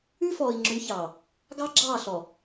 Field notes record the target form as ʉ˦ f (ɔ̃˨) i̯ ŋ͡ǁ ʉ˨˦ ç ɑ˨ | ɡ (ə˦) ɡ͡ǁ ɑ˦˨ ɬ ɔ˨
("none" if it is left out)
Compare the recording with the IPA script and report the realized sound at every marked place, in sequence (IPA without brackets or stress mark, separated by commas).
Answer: ɔ˨, ɑ˦